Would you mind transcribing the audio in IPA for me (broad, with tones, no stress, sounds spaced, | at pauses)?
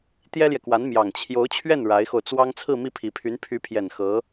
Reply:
t̪ j ɛ˥ l j ɛ˨ k w a˧˥ n m j ɑ˨˩ ŋ t͡ɕʰ j o˧˥ ʊ̯ t͡ɕʰ ɥ ɛ˥˩ n ɻ a˧˥ ɪ̯ x o˧ ʊ̯ t͡s w ɑ˥ ŋ t͡sʰ ɹ̩˥˧ m i˥˩ pʰ i˨˩ pʰ y˧˥ n pʰ y˧˥ pʰ j ɛ˨˩ n x ɤ˧˥